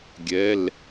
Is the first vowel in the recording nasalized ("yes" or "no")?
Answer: no